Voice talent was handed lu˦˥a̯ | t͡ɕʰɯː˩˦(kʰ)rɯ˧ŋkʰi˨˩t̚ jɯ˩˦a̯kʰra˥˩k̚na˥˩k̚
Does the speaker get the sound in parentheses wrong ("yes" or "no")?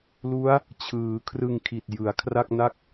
no